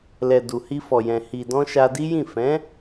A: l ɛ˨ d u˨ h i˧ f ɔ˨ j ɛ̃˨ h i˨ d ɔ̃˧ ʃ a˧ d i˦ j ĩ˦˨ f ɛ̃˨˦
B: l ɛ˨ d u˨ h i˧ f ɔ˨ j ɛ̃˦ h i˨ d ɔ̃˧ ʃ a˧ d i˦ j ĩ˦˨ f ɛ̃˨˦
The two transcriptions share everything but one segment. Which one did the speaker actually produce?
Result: A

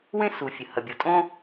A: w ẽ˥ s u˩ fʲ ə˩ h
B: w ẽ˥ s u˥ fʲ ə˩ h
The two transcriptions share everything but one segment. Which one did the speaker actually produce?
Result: A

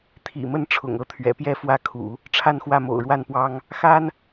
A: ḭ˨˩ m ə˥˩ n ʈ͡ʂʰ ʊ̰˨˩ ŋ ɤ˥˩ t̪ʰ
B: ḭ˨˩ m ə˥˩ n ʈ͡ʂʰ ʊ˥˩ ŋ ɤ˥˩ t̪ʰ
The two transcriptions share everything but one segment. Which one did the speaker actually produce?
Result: A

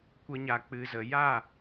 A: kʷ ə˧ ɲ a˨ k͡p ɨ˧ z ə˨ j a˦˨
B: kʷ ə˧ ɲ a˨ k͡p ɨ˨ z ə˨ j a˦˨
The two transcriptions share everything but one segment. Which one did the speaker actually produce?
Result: B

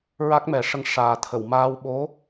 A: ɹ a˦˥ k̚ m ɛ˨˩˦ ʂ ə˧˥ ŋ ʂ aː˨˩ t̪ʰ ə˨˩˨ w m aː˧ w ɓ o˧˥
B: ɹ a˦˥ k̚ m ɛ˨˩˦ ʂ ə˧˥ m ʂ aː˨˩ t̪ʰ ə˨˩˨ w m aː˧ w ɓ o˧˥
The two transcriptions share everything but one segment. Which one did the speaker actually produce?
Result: A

